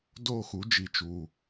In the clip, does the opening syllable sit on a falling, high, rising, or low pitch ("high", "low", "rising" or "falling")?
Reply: falling